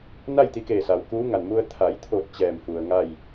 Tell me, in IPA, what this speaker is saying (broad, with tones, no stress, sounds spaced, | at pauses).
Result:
n a˥˨ j t̪ i˧ k eː˧˩ s a˩ w k uː˧˥ ŋ a˩ n m u˧ ə̯ t̪ʰ a˩˧ j t̪ʰ o˧˩ t̚ t͡ɕ ɛː˧˩ m f u˩ ə̯ ŋ a˥˨ j